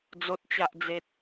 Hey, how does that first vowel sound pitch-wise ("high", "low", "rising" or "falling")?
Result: low